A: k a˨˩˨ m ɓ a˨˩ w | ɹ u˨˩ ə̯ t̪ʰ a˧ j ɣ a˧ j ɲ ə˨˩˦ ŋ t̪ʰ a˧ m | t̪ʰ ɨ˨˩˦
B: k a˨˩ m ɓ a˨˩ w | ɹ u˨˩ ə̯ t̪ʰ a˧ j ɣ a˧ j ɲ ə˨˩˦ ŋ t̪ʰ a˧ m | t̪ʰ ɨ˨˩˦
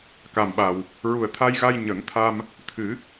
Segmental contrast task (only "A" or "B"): B